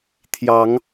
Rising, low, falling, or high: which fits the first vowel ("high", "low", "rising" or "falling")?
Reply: rising